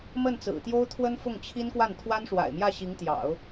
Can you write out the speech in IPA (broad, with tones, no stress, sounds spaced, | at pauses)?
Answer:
m ə˥˩ n t͡s ɹ̩˨˩ t̪ j o˥ ʊ̯ t̪ʰ w ə˥ n f ʊ˥˩ ŋ t͡ɕʰ i˥ n k w a˥˩ n t̪ʰ w a˥ n ʂ w a̰˨˩ ɪ̯ m j ä˥˩ ɕ i˧˥ ŋ t̪ j ɑ̰˨˩˦ ʊ̯